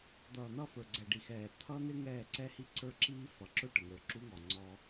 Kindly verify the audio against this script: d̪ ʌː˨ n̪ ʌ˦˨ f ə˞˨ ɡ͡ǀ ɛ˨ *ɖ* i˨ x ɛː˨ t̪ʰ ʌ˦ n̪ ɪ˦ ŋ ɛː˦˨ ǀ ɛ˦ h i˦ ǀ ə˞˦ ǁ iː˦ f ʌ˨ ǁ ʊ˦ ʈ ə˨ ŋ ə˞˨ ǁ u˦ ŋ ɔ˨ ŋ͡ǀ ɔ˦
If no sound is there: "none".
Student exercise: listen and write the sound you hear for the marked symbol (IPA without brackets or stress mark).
ɖ